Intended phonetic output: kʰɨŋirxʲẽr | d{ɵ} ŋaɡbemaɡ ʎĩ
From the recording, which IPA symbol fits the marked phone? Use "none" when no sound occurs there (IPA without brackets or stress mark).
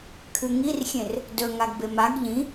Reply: ɵ